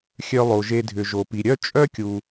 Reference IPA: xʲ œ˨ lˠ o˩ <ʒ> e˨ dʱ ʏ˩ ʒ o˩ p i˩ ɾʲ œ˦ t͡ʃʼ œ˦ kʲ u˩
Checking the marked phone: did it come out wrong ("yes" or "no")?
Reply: no